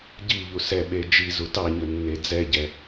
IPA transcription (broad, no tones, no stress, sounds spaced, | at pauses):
ɟ i ʎ u s ɛ ɓ e d͡ʒ i z u t ɑ ɲ ɵ nː e d͡z ɛ ɟ ɛ